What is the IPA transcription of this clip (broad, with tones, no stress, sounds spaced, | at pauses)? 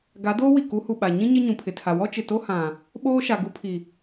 ɡ a˨˦ d oː˦ w i˨ k u˨˦ h u˨ ɓ a˨ ɲ ĩ˦ ɲ ɪ˦ ɲ ũ˨ pʰ ɪ˨ tʰ a˨ w ɔ˦ t͡ʃ ɪ˨ t o˦ h ã˨ | ɓ oː˦ ʃ a˨ ɡ u˦ pʰ i˨